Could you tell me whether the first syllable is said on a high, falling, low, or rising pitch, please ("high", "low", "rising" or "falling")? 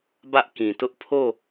high